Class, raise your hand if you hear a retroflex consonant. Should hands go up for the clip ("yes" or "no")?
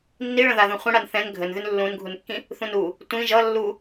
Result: yes